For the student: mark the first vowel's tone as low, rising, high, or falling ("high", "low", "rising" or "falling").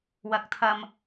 low